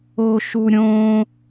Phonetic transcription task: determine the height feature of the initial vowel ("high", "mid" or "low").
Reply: mid